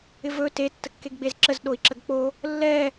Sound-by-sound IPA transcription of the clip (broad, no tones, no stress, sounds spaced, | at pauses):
ɪ v ɵ t e tː ə kː e ɡ ɡ͡b e z ǁ ə z ɗ o i̯ ǁ ə ɡ k͡p o | lː ɛ